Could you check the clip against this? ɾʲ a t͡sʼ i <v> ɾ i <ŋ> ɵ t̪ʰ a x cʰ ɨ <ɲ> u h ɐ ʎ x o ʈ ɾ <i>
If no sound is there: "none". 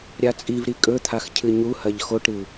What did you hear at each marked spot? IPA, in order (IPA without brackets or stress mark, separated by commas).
v, kʼ, ɲ, ɨ